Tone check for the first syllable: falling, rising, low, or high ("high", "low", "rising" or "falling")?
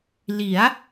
rising